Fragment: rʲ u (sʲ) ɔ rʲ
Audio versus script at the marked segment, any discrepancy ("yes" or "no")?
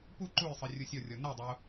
no